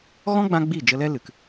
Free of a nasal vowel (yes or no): no